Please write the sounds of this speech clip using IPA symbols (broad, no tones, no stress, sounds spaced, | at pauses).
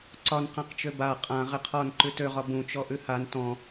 ǀ ɒ n q ã q t͡ʃ ø b a qʼ ã ʁ ɪ qʰ ɒ n ǃ ʉ t ø ʁ ɒ b ũ t͡ʃ ɔ ʔ ʉ h a n t ɔ̃